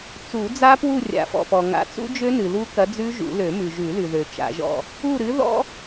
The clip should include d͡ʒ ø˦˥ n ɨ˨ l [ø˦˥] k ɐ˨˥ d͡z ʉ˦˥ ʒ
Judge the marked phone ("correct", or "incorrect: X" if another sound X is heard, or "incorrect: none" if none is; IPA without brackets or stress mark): incorrect: u˦˥